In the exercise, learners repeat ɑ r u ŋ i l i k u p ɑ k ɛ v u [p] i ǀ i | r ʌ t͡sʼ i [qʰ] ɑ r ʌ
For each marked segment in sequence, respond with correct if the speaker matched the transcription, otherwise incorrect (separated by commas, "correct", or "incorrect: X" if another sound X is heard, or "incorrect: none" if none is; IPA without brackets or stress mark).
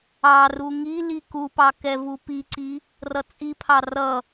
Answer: correct, incorrect: pʰ